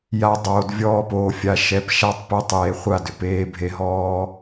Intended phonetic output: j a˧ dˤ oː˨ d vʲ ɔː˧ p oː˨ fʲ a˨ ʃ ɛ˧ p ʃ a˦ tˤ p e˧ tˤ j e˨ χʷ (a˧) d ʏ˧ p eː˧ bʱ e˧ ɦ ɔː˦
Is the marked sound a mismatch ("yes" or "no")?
yes